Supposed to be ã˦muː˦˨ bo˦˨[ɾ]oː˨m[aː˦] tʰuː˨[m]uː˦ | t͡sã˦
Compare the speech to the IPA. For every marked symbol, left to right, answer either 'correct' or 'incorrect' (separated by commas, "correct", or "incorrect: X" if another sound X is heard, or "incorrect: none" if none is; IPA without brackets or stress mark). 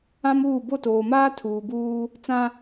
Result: incorrect: t, correct, incorrect: b